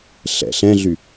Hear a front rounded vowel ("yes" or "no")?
yes